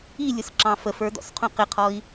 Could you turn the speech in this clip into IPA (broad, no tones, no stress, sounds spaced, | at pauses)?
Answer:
i lʲ ʊ s ǁ ɑ̃ f ə f ə˞ d ɔ̰ s qʰ ũ q ɪ qʰ ɔ i̯